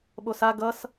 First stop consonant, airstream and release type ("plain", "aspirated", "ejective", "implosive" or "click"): implosive